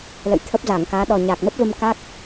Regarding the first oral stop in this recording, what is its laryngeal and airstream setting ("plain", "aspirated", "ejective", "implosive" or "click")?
aspirated